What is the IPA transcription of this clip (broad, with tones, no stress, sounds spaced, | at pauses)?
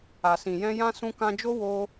a˨ s ĩ˨ j ɛ̃˧ j ã˧ s ũ˧ k ã˧ d͡ʒ o˦ w o˦